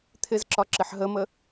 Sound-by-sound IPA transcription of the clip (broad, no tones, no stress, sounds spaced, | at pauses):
t̪ʰ ɪ z ǁ ɒ ǁ ɪ ħ ɦ ə m ə